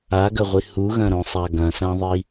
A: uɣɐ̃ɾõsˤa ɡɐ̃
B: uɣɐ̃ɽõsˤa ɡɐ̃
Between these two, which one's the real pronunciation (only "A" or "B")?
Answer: A